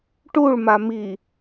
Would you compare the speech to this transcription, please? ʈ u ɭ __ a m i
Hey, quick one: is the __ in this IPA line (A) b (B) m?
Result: B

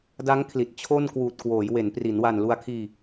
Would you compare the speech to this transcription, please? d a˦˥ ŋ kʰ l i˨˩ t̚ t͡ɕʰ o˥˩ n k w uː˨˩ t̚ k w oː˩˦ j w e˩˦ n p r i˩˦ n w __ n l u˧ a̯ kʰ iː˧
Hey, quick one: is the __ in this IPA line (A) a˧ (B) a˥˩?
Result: A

